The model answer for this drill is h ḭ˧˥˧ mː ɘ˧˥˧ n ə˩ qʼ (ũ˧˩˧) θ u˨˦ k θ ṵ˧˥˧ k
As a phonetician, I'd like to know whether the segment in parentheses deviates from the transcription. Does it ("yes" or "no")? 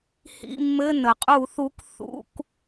yes